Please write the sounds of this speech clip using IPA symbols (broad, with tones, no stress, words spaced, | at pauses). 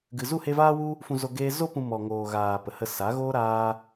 ɡɨ˧ zu˦˨he˧vaː˦wu˦ | fũ˧zo˧ ɡeː˦ zo˦ pũ˧ mɔ˨ŋoː˨ɣaː˨ pə˨hə˧ sa˨˦ɣoː˦ ɾaː˦